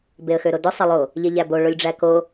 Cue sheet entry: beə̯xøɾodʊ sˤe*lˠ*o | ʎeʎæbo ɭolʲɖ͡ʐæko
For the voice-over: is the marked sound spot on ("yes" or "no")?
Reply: yes